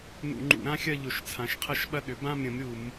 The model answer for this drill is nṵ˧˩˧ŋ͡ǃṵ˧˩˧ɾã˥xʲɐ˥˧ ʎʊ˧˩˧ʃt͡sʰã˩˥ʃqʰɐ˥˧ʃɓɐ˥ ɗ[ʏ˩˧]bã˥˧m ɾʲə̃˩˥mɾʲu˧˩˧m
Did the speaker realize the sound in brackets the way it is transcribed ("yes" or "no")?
yes